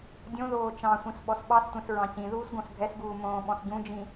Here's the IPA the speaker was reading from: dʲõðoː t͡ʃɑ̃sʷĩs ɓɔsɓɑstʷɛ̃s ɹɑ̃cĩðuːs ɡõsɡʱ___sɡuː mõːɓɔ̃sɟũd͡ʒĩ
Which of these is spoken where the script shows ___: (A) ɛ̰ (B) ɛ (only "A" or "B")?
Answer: B